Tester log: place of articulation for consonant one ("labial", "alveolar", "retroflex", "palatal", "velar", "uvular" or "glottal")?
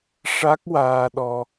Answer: retroflex